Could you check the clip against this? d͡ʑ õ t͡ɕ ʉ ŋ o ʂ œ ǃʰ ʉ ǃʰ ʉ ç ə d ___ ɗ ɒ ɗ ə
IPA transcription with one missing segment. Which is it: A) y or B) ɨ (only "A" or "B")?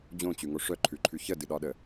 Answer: B